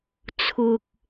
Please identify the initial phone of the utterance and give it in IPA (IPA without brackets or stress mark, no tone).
t͡sʰ